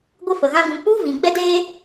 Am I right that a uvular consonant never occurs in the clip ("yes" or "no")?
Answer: yes